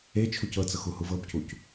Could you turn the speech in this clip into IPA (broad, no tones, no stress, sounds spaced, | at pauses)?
e t͡ʃʰ u c ɤ t͡s ɤ x u h u v ɤ b c u c